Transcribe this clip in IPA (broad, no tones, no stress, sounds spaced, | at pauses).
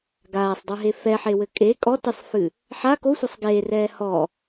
ɡ aː sˤ dˤ ɨ ɦ e f ɛ ħ e w ɘ kʼ e kʼ ɔ t ɨ sˤ f ɨ | ħ a k o sʷ a sˤ ɡ eː r ɛː h ɔ